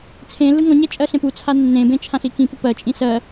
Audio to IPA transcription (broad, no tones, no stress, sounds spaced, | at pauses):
t͡sʰ ẽ lː ɯ ŋ ɔ̃ ɲ ɛ t͡ʃʼ ɜ ɬ ẽ p u t͡sʰ a nː ẽ b ẽ t͡ʃʰ ã ɬ i k ĩ p u p ɜ t͡ʃʼ ĩ s ɜ